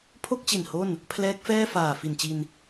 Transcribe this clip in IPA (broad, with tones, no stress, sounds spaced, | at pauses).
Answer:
pʰ o˥˩ k̚ t͡ɕ i˨˩ n h o˥˩ n | pʰ l ɛː˦˥ k̚ f ɛː˥˩ f aː˨˩ f i˨˩ n t͡ɕ i˧ n